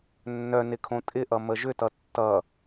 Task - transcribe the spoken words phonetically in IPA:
nːœnɪ kʰõtʼɪʔʌ məʒʏtʌ tːʌ

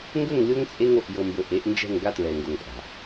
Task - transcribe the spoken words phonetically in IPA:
ŋɡɵ˦˨ŋlʲo˦ŋ t͡sʼe˦ŋo˨ʔjɤ˨mbɵ˨ ʔe˨˦ʔnd͡ʒɛ̤˦˨ŋɡa˦tɹɛ˨ ŋɡo˨ŋpʼa̤˨

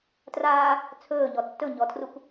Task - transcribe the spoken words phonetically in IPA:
traː | t͡sʰɵːɲɔ tːɵɲɔtʰruk

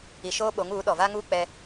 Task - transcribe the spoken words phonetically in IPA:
i˨ʃoː˦ɓo˨˦ŋ uː˨˦ɗɔ˨va˦ŋuː˦ k͡pɛ˦

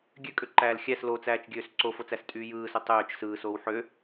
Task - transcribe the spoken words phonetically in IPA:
ɡʲøkʼøǃæːl xʲæs lot͡sæːt͡ʃɡʲøːs ǀofot͡sæstʼyː jɯːso tˤøːt͡ʃ sɯːsoːw ħø

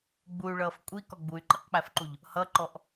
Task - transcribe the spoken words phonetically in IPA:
ɡ͡buy̯ɭʌːf kʷʼikɔ ɡ͡buy̯ǃiqk͡pæfǃuʎ | hʌǃɔʔ

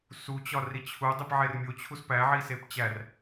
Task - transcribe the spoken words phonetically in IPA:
sut͡ɕɒri t͡ɕʰudˤip ʕermʲo t͡ɕʰuspæʕisep t͡ɕær

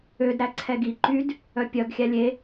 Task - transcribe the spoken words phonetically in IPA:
ødɾæ ǀʰɛɡiǃyd | œpʲœɡxʲæ lʲe

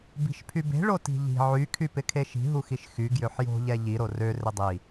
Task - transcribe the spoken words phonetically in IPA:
bi̤ʃpʰybe̤ ɭoti̤ʎi̤ ʕy kʰypɪkʰeʃi̤ ɦuxiʃxy ɡjøħjo̤ ʎɛʎi ɾorø rɪdˤi

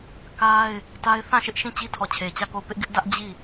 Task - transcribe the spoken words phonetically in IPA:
ka˦ɪ̯ | ta˦ɪ̯ θã˦˨ʃɪ˦ʔ ʃĩ˦˨t͡ɕi˦tʰɔ˨ t͡ɕʰe˨t͡ɕä˦˨ko˦˨ʊ̯ pɪ˦ʔɡɪ˦ʔdä˦ʔ d͡ʑi˦˨

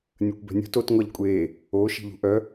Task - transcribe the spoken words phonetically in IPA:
nʲəkʷbɛ̤nʲṳt ot ŋʷaʎkʷʼeː | o ʃi̤ʎṳʔœ

